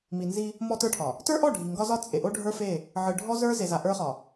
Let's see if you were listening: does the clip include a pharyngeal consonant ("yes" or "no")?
yes